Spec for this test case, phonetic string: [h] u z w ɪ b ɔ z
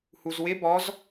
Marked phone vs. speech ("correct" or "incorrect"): correct